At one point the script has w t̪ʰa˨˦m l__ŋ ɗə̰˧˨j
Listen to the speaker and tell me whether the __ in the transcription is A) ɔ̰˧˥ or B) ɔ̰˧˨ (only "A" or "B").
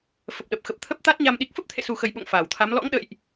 A